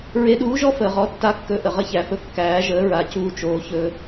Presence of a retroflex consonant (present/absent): absent